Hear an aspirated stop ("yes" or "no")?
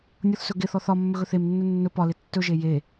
no